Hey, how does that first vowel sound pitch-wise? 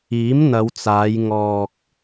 rising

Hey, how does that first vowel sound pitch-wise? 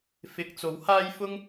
low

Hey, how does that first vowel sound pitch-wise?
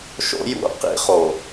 high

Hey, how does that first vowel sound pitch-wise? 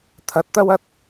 low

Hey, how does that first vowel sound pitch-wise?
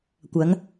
rising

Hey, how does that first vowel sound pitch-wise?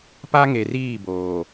high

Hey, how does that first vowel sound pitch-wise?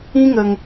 high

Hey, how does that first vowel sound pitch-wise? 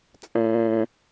low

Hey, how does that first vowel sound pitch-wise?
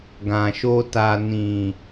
low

